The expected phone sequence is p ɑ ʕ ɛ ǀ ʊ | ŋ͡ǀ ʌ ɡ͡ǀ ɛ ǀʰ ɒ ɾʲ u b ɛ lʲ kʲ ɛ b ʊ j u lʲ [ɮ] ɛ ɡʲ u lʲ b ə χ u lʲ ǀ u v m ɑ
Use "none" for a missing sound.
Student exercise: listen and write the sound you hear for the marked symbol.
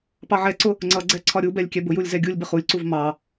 z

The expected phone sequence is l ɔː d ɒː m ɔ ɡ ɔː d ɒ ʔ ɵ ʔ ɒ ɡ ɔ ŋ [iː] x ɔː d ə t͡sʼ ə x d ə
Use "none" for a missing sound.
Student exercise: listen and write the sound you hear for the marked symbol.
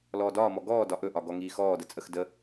iː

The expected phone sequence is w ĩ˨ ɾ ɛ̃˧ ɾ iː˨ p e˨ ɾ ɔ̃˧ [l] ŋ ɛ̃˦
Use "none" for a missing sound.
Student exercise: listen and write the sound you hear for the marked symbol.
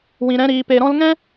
l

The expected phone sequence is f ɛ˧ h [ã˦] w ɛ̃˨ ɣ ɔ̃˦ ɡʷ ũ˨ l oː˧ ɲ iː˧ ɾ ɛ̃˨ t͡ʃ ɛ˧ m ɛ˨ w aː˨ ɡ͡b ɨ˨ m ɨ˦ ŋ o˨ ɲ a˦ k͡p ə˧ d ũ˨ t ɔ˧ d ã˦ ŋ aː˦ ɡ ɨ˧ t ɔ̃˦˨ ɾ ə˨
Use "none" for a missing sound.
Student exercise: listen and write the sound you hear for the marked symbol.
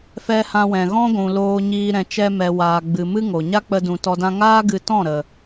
ã˧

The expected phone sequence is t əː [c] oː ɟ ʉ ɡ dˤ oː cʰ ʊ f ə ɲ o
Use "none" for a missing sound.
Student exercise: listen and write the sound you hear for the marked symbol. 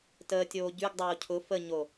tʲ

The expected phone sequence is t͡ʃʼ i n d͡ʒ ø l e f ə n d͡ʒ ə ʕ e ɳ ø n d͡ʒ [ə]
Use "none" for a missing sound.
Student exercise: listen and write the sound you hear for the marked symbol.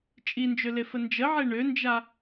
a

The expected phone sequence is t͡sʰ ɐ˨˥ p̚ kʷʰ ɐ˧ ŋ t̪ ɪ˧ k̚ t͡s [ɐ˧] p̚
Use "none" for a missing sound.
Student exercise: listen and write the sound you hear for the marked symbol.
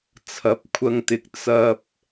ɐ˧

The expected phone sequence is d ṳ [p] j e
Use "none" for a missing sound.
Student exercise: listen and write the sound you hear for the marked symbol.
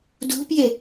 p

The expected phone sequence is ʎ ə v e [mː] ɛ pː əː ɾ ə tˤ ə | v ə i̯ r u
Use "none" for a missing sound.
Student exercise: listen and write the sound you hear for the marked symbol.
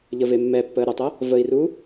mː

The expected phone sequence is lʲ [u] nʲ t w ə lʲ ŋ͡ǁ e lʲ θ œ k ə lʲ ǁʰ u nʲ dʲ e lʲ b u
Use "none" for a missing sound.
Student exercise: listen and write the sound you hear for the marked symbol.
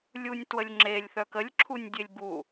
u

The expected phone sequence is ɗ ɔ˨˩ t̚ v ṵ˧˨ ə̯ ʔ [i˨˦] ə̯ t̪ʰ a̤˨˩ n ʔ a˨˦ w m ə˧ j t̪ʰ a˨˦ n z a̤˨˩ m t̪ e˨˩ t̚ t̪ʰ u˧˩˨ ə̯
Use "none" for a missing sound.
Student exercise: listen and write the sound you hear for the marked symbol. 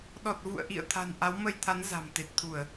ḭ˧˨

